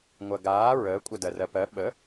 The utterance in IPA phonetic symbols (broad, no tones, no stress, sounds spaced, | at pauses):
ŋʷ ɜ ɡ aː ɹ əː kʷʼ ɜ d ɜ r ɜ p ɜ ɓ ə